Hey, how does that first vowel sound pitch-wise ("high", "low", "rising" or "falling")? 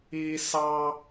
high